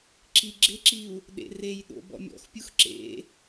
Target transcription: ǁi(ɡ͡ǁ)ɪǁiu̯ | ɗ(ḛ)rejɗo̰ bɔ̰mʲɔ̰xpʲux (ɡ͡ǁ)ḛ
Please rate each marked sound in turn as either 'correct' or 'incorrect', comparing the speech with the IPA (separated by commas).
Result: correct, correct, incorrect